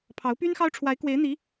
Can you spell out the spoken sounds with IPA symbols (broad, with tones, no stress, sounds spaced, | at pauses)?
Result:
pʰ ɑ˧˥ ʊ̯ p y˥ n x ɑ˥ ʊ̯ ʈ͡ʂʰ w a˧˥ ɪ̯ k w e˧˥ ɪ̯ n̪ i˧˥